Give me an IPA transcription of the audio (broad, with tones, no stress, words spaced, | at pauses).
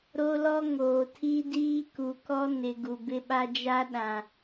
ɾo˦lɔ˦ ŋoː˨tʰi˦diː˦ ku˨kɔ˦ nɪ˨ ɡu˨bɪ˦ɓa˦ d͡ʒa˦ɗã˨